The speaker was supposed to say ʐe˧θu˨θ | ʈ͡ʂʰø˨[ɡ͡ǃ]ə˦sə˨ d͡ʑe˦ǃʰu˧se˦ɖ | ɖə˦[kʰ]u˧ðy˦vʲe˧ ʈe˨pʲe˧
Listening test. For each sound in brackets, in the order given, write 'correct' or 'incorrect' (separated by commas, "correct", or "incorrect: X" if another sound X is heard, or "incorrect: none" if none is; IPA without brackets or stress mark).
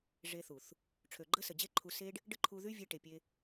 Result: correct, incorrect: ǃʰ